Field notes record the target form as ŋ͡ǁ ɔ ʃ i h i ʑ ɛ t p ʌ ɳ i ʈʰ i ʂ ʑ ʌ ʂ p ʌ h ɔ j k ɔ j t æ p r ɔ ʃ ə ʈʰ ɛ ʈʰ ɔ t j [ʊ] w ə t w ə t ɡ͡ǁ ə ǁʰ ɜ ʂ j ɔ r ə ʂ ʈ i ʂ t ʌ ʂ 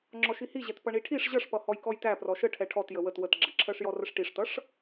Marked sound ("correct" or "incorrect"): incorrect